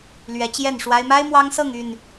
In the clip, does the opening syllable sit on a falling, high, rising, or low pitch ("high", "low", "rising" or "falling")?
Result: rising